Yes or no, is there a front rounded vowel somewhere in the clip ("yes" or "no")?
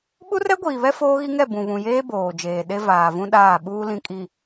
no